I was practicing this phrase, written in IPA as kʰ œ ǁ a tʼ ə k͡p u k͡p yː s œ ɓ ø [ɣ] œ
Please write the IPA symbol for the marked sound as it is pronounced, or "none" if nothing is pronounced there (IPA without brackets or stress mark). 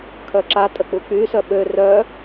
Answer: r